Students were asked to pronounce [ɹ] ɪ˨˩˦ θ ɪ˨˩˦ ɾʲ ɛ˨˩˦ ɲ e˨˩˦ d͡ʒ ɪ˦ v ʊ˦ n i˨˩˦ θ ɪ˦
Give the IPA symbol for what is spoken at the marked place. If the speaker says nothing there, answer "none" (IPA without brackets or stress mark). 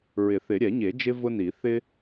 ɹ